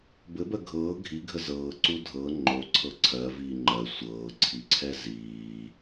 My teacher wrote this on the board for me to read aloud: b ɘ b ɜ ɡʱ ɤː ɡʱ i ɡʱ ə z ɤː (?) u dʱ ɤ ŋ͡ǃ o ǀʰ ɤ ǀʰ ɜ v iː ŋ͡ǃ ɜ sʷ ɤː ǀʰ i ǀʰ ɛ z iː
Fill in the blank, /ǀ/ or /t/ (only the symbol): ǀ